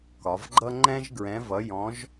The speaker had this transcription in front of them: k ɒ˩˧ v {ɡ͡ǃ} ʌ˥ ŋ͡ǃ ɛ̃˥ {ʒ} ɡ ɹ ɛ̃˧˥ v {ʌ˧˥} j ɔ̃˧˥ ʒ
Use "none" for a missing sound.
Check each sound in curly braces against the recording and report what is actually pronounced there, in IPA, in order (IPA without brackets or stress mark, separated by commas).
ɡ͡ǃ, ʒ, ʌ˧˥